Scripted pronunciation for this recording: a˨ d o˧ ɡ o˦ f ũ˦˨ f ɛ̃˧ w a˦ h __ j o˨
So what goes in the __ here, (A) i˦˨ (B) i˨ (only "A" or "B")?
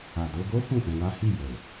A